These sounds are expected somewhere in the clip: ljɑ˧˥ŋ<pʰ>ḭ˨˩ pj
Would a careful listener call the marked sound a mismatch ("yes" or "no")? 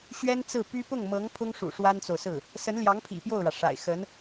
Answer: no